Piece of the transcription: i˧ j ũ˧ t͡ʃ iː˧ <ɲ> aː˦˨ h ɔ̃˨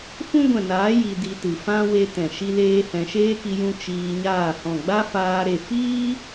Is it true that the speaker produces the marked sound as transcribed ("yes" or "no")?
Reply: yes